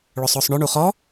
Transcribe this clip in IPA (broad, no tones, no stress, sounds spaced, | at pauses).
ɭ ʊ sˤ ʊː sˤ ɳ ʏ ɳ u χ ɔ